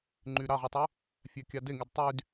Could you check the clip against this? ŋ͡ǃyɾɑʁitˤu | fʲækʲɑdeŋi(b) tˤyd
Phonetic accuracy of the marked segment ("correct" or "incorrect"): incorrect